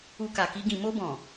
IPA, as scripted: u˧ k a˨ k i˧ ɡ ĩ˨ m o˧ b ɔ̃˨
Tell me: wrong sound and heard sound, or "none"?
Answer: none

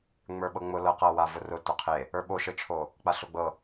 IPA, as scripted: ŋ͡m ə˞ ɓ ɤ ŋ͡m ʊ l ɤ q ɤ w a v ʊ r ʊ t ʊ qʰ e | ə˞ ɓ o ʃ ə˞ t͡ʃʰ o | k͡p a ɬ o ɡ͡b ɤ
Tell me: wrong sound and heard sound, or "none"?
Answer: none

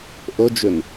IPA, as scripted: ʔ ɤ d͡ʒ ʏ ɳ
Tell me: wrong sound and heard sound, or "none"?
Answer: ɳ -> n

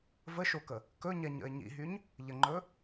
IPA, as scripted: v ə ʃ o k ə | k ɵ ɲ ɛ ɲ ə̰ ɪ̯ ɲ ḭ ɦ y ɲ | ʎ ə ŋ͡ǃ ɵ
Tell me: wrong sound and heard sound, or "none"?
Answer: none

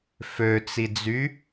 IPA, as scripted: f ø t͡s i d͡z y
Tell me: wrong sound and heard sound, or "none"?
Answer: none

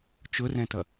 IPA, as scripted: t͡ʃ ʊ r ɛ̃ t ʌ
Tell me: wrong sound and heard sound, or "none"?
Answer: none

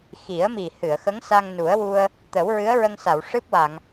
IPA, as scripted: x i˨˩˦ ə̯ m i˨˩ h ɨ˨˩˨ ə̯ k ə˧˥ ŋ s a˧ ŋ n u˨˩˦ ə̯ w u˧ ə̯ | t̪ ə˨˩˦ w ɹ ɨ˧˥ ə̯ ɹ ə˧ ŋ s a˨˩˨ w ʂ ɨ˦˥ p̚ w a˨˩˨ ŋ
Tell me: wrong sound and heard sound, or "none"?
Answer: k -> x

